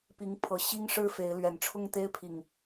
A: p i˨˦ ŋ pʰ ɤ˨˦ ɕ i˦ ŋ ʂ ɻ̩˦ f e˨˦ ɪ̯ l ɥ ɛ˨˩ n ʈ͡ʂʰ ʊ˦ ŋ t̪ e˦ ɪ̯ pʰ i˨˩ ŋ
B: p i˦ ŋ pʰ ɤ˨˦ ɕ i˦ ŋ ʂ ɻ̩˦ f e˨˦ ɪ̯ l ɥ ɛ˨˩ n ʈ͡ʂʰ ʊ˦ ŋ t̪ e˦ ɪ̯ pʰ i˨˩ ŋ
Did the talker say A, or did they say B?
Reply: A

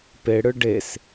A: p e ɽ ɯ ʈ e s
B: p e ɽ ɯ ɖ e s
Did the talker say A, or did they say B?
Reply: B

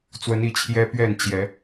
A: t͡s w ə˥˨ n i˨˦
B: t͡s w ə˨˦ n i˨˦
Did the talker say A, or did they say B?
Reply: B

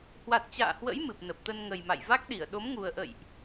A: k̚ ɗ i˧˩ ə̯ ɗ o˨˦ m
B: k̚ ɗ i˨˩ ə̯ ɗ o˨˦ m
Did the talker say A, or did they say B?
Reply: A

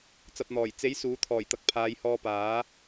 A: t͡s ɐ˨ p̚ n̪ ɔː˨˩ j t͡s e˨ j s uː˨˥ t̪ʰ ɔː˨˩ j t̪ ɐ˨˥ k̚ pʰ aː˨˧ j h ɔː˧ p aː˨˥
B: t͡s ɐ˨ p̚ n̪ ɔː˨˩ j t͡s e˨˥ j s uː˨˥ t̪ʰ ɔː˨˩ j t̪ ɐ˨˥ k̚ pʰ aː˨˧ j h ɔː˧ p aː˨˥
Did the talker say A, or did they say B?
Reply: B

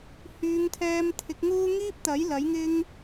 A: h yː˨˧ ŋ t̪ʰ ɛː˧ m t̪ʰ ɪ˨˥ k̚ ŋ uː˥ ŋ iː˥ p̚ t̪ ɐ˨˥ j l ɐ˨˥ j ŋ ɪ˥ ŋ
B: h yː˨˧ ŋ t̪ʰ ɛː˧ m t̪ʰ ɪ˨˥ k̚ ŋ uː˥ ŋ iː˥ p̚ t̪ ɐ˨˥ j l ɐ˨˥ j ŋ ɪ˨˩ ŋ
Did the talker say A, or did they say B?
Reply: A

